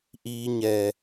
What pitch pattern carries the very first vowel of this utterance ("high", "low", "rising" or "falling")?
low